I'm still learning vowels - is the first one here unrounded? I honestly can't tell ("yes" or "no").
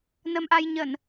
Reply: yes